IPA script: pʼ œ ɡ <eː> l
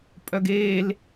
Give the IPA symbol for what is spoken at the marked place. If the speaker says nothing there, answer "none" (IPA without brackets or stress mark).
eː